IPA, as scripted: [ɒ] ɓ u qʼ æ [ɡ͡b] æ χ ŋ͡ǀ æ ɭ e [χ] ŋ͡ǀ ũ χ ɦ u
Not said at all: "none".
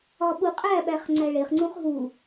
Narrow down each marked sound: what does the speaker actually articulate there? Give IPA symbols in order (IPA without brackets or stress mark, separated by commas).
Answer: ɒ, ɓ, χ